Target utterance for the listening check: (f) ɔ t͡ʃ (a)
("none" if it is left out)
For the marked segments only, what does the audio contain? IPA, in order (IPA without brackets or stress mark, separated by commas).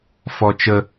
f, ə